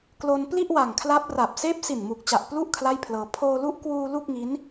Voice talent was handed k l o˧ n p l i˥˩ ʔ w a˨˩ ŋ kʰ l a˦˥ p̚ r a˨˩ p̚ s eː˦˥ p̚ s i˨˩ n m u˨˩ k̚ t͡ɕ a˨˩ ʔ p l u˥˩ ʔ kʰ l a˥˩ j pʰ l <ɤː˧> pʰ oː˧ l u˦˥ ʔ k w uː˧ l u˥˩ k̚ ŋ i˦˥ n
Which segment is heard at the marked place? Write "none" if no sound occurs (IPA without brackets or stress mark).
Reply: ɤː˧